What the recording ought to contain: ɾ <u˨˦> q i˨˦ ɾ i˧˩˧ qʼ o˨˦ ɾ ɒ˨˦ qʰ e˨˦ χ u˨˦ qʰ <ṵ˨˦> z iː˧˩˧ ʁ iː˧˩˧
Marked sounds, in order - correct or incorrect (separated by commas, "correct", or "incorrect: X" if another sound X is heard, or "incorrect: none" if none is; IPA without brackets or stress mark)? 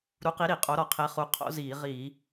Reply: correct, incorrect: o̰˨˦